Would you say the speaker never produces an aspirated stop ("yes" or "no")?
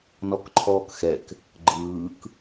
no